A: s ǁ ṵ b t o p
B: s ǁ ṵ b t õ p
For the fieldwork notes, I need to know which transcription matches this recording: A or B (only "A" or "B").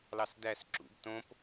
B